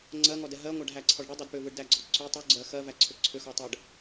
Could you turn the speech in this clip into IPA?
ŋ͡ǀɜŋɔdɛ ɦɜŋʷæɖɦæǀʰɔɖ ɽɯdˤɯd pʏvɯɖdæɡ͡ǀɔ ǀʏ tˤu ɡ͡ǀɜx ɜvæǀʰʏ ǀʰʏxɔtˤɛɖ

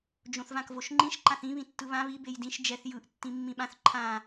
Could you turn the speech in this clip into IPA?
d͡ʒõθvãkvoʃŋ͡ǃĩʃ ǃãθĩ βĩtːɯβã βi bejdĩʃ d͡ʒɛθ jɯʔ tːĩmːĩɓãθ ǃʰã

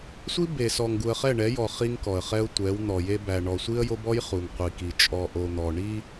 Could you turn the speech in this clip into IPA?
sʷi˦ be˨sɔ˨ŋɡu˨ə̯ χɛ˦˨ɳɛ˨˦ jɔ˨ χi˦ŋkɔ˨ə̯χɛ˦ʊ̯ tʷɛ˨˦wn̪ɔ˨je˦ bæ˨ɳɔ˨ sʷi˦ə̯jo˦bɔ˦j χu˨ŋqʷi˨ki˨ t͡ʃʼɔ˨ʔo˨n̪ɔ˨ ɳi˦

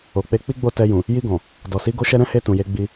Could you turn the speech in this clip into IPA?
o˨k͡pe˧ k͡pi˦ɡ͡bo˦˨ tɛ˧jũ˨ | ji˧ɡɔ̃˨ | dɔ˨si˨˦ ɡo˧ʃɛ˧ ɾɛ̃˦he˧ tũ˨je˧ ɡ͡bi˧

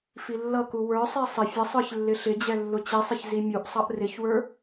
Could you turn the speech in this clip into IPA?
filːʌku wə˞sˤi sˤɪ fʲəsˤə˞ç lːɪɬɪd͡ʑɛ lːʊt͡ɕisˤɪç zimʲuʔsˤʌʔ rɪçwə˞

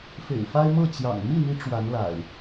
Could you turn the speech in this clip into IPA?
fḛ˨˩ɪ̯fa˦ɪ̯ mɤ˥˨t͡ɕjɑ̰˨˩ŋ mi˥˨n̪i˨˦ ʈ͡ʂwa˨˦nla̰˨˩ɪ̯

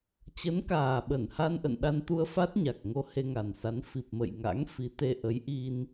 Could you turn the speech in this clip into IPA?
t͡ɕə˨˦nkaː˨˩ɓə˧˩n ha˧nʔə̰˧˨n ɗa˧nt̪u˧ə̯fa˦˥t̚ɲa˨˩k̚ ŋo˧he˧ŋa˨˩nsa˨˦n fi˨˩p̚mə̰˧˨j ŋa̰˧˥ŋ fi˨˦t̪e˧ ʔə˨˦j ʔi˧n

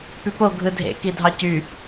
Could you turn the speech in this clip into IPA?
pypo ɡʱɯdʱḛ kidʱɑcy

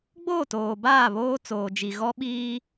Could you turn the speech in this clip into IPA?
ɡ͡boː˦˨toː˨baː˦˨ βoː˦ t͡soː˨d͡ʒi˨ ɣɔ˦ ɓiː˦

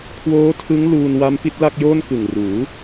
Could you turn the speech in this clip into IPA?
kʰwoː˦˥tʰɯ˦˥ŋ luː˧nwa˦˥m pi˦˥t̚la˥˩k̚joː˥˩nkɯ˨˩ŋ ruː˩˦

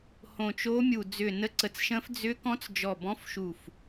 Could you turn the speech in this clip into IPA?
hõ˧˩t͡ʃo˧˥mʲu˧˩ d͡zʏ˧˩nə˧˥ǀə˧˩t͡sʃə̃˧˥f d͡zʏ˧˥kɔ̃˧˥t͡s d͡ʒɔ˧˩bɔ̃˧˥fʃu˧˩f

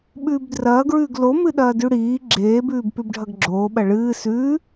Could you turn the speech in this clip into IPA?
ɓʉːbdrɐːɡɹʉːɡ lomɨɗɐː dʉɽiː ɡ͡ǁeːbʉːb pʉbɖʱɐɡɡ͡ǁoːɓɐ ɭɨː sʉː

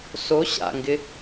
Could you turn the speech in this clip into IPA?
so ɕa̰ŋɡɪ

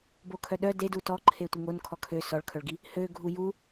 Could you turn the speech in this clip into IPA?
bokʰœɗœ dedu tɔǃʰe tʷiŋonkʰɔ kʰø sɔɭkʰœɭɡi | hø ɡʱuju

